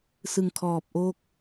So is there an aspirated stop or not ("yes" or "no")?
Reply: yes